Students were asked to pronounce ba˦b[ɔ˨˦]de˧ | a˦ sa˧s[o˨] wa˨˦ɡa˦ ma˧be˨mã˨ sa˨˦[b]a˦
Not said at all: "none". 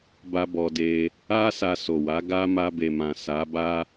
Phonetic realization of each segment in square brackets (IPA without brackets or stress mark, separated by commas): ɔ˧, o˨, b